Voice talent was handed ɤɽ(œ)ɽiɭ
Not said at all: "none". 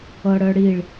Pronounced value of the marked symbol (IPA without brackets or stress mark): œ